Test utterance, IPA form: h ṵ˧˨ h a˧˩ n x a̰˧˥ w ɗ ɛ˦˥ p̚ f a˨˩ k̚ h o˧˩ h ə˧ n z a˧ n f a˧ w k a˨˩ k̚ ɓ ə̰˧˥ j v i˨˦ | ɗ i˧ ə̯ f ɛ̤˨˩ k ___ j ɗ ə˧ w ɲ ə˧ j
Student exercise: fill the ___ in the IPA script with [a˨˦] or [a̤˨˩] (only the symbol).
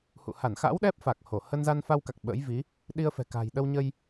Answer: a̤˨˩